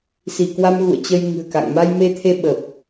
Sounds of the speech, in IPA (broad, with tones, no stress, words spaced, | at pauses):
si˧˩kwa˧mɣṵ˧˨ə̯ t͡ɕə˧jŋɨ̤˨˩ə̯ka̰˧˨ŋ ma˧jme˧t̪ʰe˧ ɓə˨˩p̚